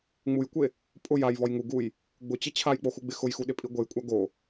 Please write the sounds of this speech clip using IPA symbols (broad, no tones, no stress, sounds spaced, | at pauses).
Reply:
ŋ͡m u j kʷ e | pʼ ʊ j a j v ɔ j ŋ u ɡ u j | ɡ͡b ʊ t͡ɕ ɪ t͡ɕʰ a j k͡p o x u ɡ͡b ɪ x ʊ j x u ɗ ɪ pʼ i ɡʷ e j kʷʼ a ɡ o